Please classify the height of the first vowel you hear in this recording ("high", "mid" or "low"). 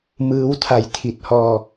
high